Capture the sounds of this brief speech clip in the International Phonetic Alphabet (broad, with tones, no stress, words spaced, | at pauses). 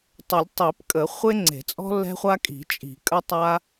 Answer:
tˤə˨˩˦lʲtˤi˨˩˦pkʼə˨˩˦ χʷe˦ŋ͡ǀe̤˨˩˦t͡sʼɔ̤˦ lːɛ̤˦χʷa˦kʼi̤˨˩˦ t͡ʃʼi̤˨˩˦kʼə˦tˤa˦